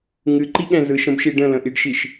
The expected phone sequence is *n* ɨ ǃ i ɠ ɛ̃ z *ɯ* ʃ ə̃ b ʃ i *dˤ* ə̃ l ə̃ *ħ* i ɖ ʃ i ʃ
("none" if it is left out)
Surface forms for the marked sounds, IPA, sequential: ŋ, ɯ, ɖ, ʔ

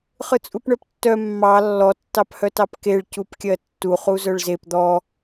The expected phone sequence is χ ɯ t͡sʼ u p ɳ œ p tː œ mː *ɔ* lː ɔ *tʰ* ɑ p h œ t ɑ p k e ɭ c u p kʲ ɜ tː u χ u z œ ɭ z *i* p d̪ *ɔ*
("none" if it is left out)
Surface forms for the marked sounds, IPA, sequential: ɑ, tː, e, ɔ

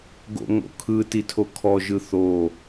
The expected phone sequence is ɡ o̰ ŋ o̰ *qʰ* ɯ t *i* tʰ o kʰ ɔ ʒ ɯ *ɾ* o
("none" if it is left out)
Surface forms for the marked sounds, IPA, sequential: kʰ, i, θ

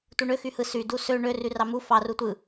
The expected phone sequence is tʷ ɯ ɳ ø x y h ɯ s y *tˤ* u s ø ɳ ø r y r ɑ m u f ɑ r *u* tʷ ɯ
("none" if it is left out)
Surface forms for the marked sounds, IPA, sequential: d, u

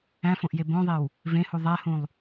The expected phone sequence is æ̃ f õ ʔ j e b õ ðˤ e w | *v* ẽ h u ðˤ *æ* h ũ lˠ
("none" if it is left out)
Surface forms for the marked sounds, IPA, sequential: v, æ

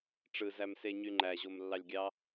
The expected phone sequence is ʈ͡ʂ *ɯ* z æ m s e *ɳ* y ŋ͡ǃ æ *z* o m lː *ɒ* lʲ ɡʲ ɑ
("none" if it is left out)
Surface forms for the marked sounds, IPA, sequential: ɯ, ɲ, ʑ, ɑ

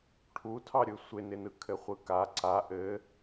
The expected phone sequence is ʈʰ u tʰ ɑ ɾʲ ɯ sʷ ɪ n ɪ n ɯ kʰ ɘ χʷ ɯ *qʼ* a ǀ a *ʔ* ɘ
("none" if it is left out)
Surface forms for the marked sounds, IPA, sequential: k, ʔ

